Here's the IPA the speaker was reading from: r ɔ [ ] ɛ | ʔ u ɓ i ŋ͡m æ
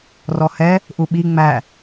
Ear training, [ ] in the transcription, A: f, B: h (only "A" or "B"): B